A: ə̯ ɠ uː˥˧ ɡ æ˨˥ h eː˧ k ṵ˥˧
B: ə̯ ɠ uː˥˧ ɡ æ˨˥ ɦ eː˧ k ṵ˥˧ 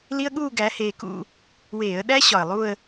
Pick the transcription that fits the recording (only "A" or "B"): A